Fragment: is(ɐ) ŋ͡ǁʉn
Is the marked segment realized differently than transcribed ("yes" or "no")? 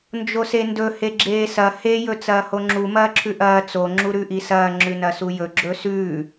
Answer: yes